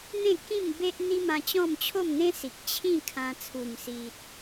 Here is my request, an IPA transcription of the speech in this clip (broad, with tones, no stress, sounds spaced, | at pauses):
n̪ ẽ˥˧ k ĩ˥˧ m b e˦ ʔ n̪ i˦ m ã˧ t͡ɕ ɔ̃˥˧ m t͡ɕʰ o˥˧ m n̪ ẽ˦ s i˨ k̚ t͡ɕʰ ĩ˥˧ kʰ ã˧ t͡sʰ u˨˩ m s i˨ t̚